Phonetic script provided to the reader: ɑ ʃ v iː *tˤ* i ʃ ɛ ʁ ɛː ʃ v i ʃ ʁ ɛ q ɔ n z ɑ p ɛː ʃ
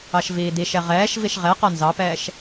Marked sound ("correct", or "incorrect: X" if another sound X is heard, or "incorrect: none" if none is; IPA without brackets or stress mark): incorrect: d